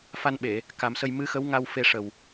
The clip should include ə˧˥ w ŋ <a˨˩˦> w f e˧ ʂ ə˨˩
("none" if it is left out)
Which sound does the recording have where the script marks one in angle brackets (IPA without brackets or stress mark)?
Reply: a˧